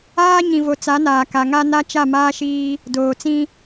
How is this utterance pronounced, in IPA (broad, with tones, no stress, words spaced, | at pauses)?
aː˦ ɲĩ˨vo˨t͡sa˨˦naː˨ ka˨ŋa˦na˦ t͡ʃa˦˨maː˦ʃiː˦ | doː˨t͡sĩ˦